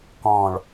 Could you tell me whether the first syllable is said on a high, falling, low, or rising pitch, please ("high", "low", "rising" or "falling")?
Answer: low